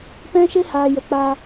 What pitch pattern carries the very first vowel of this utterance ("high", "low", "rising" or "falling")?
high